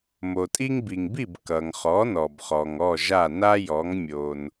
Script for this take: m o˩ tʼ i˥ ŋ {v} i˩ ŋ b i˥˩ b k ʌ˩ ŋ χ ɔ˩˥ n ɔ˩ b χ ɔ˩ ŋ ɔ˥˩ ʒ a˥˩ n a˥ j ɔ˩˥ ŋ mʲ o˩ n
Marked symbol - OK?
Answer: no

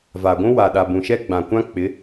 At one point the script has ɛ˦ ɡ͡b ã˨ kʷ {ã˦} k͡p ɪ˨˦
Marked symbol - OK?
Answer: yes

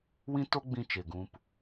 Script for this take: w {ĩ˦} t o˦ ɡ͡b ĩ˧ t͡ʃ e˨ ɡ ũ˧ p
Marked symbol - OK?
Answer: yes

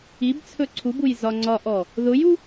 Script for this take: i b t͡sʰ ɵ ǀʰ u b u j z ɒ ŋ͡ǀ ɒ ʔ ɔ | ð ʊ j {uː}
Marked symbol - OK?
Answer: no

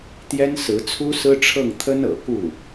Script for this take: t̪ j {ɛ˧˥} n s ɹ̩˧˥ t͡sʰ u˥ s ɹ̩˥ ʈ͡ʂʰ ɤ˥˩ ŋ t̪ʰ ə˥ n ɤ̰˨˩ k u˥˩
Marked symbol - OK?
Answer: no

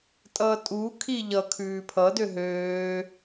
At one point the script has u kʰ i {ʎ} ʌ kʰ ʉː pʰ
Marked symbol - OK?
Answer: yes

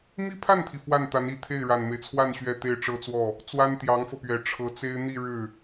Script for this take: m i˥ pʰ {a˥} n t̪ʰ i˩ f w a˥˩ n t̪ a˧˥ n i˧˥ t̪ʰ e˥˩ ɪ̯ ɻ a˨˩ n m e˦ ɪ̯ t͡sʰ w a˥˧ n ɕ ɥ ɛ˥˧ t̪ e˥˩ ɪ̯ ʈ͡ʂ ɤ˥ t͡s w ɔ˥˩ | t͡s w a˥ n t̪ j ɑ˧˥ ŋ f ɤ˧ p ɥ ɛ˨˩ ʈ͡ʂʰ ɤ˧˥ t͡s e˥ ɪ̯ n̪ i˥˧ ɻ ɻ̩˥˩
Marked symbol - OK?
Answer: no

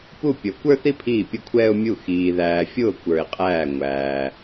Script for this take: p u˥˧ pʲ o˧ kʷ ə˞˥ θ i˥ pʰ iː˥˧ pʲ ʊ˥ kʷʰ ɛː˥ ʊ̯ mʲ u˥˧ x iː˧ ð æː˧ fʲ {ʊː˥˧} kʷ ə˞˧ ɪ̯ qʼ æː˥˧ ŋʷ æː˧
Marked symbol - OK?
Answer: yes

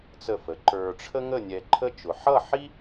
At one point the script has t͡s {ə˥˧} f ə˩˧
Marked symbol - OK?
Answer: no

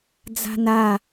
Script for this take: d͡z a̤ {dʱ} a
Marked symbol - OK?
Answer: no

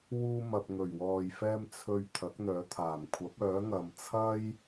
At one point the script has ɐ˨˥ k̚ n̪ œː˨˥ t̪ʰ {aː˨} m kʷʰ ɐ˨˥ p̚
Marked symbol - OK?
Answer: no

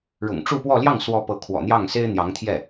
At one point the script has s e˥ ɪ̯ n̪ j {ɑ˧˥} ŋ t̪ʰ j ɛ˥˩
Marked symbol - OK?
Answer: yes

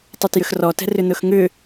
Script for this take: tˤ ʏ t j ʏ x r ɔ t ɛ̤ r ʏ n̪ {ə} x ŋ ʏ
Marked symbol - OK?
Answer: no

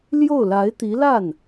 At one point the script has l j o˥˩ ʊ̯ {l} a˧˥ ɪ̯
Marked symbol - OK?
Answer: yes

